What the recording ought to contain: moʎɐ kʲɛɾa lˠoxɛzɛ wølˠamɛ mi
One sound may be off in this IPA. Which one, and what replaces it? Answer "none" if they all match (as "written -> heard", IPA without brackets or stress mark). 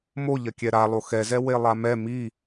ø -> e